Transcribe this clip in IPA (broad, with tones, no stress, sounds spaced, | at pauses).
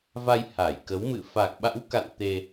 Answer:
v a˧ j h a˧˩ j k ə˨˦ w m ɨ̰˧˨ f a˨˩ k̚ ɓ a̰˧˥ w k a̰˧˨ n t̪ e˧